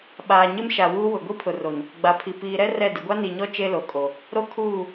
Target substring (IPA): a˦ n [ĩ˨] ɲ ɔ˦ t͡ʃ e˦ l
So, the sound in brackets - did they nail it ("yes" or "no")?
no